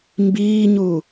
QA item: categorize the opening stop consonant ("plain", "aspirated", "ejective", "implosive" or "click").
plain